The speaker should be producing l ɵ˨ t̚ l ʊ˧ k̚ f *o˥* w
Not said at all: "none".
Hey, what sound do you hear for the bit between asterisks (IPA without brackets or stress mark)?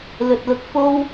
o˥